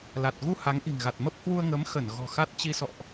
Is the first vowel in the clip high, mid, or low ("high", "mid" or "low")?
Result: low